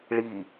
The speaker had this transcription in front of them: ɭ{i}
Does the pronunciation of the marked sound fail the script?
no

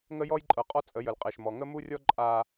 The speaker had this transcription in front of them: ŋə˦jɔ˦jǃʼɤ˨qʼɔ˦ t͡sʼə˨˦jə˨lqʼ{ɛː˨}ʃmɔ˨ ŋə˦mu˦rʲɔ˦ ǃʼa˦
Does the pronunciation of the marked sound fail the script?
yes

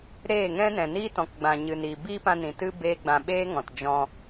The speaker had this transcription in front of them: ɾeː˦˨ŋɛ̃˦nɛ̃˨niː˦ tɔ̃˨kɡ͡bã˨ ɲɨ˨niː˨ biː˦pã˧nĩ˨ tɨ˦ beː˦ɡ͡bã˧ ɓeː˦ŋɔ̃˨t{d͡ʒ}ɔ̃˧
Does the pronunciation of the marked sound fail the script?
no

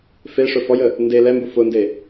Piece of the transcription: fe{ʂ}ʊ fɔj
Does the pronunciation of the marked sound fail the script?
no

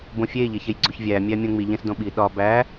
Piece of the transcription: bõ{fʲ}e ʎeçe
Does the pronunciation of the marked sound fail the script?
no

